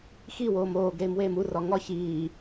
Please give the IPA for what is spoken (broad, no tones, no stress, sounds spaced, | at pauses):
x i w oː m oː ɡ ɾ eː m w eː m u r ɒ ŋ ɒ ç iː